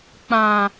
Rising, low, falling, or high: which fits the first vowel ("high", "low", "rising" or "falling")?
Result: low